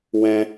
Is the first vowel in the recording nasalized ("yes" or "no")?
yes